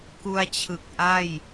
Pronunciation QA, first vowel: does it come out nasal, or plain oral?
oral